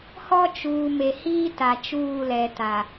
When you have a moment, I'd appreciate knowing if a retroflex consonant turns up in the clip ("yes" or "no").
no